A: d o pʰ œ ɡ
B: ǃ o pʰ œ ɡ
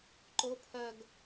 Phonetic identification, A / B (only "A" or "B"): B